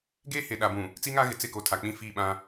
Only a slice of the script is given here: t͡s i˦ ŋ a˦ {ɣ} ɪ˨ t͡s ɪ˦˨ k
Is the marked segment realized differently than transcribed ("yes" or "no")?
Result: no